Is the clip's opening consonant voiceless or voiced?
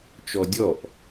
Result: voiceless